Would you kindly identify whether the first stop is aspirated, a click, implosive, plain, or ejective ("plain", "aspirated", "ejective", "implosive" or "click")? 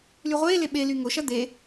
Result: implosive